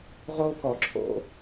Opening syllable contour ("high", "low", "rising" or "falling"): high